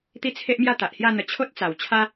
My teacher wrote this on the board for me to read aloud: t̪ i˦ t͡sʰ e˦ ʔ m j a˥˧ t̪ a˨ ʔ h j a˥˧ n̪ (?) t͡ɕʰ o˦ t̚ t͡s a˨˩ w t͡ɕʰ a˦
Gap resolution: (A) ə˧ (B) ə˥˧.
A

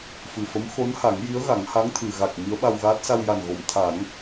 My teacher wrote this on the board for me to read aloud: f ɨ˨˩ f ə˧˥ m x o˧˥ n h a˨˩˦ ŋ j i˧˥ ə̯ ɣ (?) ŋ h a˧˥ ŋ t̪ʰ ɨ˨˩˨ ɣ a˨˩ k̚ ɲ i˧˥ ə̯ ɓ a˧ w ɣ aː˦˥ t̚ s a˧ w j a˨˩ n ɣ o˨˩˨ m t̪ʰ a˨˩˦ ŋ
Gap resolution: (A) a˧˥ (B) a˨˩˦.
B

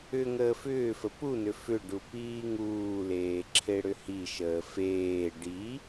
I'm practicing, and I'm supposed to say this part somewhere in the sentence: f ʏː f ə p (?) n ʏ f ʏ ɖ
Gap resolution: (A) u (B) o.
A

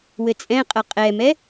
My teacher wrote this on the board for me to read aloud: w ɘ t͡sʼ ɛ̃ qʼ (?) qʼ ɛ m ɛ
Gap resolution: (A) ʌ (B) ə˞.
A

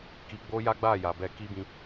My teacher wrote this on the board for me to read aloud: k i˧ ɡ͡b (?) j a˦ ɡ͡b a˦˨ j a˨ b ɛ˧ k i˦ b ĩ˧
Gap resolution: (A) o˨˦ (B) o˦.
B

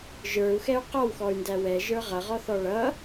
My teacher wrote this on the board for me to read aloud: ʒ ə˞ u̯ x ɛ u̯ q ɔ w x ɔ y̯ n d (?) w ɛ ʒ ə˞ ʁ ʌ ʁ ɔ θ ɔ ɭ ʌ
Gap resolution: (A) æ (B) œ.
A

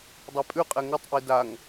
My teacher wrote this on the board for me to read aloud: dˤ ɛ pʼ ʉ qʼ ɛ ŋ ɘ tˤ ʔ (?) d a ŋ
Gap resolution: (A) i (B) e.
A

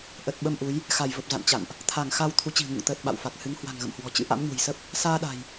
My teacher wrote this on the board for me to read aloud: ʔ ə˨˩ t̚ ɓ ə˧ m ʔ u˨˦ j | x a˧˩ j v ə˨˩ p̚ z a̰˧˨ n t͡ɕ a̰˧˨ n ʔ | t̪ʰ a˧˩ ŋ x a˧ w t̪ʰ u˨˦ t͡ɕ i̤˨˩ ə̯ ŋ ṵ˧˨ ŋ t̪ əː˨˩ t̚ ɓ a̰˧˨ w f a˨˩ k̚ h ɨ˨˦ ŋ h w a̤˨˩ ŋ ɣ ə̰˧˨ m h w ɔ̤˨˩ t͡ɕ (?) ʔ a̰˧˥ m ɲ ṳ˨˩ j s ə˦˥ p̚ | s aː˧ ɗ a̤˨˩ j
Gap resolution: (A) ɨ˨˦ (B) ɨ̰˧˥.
B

